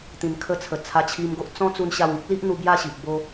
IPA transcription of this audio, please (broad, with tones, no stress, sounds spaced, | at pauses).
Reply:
t̪ ĩ˧ n kʰ ə˦ t͡sʰ ə˨˩ t͡sʰ a˧ t͡ɕʰ i˧ m ɡ o˦ ʔ t͡s ɔ̃˦ t͡s u˧ n ɕ a˧ w ĩ˦ k̚ l i˦ ʔ n̪ u˧ b j a˥˧ ɕ i˨ ʔ b o˧